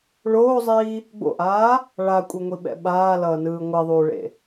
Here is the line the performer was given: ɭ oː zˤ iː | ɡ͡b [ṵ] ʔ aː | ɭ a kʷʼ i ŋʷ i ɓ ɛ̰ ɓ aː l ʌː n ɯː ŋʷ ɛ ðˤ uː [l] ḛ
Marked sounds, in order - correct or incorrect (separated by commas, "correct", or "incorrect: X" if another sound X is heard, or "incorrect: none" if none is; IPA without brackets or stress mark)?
incorrect: o̰, incorrect: ɭ